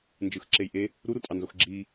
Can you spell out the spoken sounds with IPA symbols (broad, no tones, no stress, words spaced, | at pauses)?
nd͡ʒɯxǁejʔe | ɾuɾutʼɑnzox ɡ͡ǁi